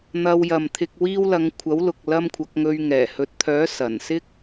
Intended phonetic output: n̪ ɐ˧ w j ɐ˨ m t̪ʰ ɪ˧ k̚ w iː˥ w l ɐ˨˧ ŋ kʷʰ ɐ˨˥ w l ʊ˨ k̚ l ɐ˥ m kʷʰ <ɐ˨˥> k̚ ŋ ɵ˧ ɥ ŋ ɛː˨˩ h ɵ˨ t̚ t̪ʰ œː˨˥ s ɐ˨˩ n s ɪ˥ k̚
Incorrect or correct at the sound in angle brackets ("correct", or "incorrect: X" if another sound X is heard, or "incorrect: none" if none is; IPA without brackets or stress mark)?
correct